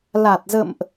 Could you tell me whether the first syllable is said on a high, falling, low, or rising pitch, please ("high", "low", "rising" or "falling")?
low